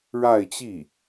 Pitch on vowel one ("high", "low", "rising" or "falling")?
falling